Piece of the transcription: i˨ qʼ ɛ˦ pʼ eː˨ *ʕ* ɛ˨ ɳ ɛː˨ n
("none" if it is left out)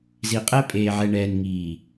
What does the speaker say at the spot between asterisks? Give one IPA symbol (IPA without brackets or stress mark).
ʕ